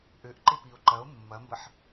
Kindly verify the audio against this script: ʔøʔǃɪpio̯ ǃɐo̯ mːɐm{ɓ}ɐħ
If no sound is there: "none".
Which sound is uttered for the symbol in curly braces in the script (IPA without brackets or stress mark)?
b